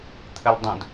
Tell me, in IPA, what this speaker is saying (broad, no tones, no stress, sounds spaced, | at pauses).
t̪ʰ ə l dˤ ə̃ d